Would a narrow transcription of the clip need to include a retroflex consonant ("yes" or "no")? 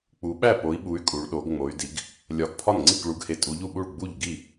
yes